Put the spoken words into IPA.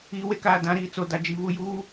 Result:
iː˨ w e˦ k aː˨ d ã˨˦ ɾ iː˨ t͡s o˨ d a˨ d͡ʒ i˨ β u˨ j uː˦

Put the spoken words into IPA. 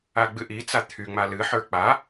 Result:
a ɡ͡b ɨ ʔ i t͡s a t̪ʰ y ŋ͡m a l ɨ ħ ə˞ k͡p a

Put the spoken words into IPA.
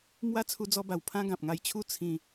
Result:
m w a˦ t͡sʰ u˧ d͡z ɔ˧ b a˨˩ w pʰ ã˦ ɡ ã˨ p̚ ŋ a˧ j t͡ɕʰ u˦ t͡sʰ ĩ˧

